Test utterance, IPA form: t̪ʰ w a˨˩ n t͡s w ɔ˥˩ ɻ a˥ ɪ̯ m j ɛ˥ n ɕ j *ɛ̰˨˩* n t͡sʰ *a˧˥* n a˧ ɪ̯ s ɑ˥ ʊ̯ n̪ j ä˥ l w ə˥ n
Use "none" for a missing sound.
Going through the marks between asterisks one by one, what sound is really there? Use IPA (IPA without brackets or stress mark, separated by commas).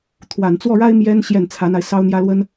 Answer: ɛ˥˩, a˧˥